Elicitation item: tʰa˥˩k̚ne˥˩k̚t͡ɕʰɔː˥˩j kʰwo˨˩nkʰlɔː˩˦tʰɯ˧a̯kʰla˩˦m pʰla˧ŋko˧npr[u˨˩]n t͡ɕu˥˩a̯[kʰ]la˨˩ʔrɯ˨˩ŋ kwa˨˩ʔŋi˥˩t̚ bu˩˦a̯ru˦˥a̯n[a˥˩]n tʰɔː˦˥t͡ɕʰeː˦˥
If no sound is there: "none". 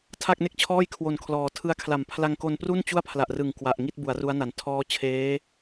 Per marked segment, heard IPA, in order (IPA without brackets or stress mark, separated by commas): u˥˩, pʰ, a˩˦